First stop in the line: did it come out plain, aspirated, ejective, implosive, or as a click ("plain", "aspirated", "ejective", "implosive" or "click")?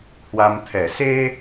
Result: aspirated